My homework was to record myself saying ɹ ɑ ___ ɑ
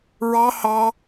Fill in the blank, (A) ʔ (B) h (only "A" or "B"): B